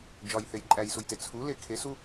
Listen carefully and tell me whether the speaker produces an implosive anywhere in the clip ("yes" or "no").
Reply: no